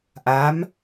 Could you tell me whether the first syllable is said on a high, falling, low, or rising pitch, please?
rising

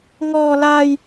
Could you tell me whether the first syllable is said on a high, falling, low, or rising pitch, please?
high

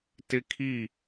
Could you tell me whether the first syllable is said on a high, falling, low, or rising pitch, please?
high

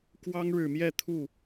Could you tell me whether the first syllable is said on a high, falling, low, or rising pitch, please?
high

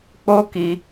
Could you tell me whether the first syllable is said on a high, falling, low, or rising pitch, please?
high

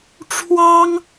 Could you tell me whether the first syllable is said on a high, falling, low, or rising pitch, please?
high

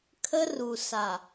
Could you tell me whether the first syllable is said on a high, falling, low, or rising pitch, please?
high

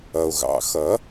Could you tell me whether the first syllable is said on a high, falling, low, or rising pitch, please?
low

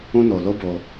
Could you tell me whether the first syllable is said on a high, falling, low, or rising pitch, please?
high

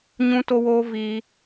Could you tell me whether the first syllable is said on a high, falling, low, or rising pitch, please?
high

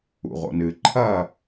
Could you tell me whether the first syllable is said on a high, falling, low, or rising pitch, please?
low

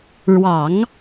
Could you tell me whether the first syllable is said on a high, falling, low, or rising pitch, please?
low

